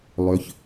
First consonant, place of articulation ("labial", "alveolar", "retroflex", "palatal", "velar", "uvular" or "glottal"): alveolar